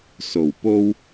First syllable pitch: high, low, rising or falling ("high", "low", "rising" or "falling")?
low